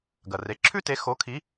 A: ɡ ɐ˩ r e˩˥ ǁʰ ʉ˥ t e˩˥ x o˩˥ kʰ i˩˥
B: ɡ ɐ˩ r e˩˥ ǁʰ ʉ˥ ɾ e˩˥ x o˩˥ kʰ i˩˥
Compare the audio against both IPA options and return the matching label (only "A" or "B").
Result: A